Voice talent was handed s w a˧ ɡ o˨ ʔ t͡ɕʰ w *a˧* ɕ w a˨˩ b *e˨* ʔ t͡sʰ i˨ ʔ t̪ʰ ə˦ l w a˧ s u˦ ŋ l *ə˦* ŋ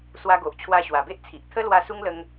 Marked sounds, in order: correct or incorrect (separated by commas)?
correct, incorrect, incorrect